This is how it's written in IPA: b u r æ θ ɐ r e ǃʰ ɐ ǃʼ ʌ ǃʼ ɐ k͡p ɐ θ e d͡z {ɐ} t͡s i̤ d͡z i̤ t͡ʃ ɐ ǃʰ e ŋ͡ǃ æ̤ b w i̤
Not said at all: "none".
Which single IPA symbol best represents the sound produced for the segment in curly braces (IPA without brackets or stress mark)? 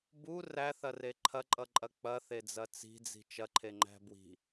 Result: ɐ